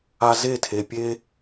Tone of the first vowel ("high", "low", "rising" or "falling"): high